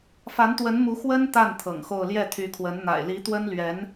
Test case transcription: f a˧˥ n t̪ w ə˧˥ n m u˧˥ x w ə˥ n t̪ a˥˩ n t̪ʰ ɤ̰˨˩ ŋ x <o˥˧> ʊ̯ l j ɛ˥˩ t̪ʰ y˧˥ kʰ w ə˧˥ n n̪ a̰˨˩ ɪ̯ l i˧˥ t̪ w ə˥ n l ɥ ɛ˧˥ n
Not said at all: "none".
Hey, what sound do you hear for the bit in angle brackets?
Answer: o˥˧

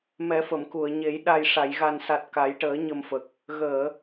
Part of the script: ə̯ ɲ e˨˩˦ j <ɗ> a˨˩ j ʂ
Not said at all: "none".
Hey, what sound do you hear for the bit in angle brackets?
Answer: ɗ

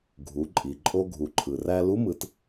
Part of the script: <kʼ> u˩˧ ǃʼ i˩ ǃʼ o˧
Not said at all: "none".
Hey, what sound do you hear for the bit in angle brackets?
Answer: ɡʱ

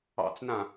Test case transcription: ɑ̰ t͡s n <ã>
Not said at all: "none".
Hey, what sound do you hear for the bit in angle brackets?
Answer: ã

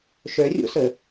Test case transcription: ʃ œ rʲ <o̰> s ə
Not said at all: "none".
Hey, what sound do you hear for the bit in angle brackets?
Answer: o̰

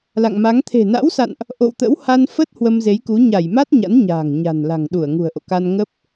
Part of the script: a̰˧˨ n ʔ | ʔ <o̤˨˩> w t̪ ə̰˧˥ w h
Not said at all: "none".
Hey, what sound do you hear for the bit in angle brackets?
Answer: o̰˧˨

